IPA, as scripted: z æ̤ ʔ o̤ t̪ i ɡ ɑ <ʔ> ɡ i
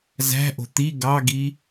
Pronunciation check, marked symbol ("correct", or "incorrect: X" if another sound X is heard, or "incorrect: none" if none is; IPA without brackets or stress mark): incorrect: none